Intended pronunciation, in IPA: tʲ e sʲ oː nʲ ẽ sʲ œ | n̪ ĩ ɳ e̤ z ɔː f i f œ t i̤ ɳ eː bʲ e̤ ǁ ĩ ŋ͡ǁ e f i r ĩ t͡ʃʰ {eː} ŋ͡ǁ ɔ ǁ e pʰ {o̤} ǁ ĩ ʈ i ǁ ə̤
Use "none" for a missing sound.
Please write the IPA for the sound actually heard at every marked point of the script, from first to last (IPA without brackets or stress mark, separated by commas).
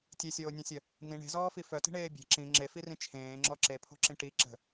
ẽː, o̤